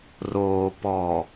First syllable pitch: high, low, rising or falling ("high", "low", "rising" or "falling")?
low